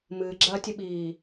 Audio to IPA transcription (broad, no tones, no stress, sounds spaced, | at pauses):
m ɨː ɡ͡ǁ ɐː tʲ ɨ ɓ iː